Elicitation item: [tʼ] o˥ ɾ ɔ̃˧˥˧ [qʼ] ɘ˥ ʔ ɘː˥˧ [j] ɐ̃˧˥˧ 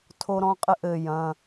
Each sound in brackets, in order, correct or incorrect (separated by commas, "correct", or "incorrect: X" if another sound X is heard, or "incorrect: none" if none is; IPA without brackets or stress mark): incorrect: tʰ, correct, correct